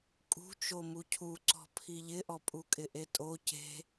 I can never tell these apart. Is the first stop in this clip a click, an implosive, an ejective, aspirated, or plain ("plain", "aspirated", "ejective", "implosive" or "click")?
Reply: ejective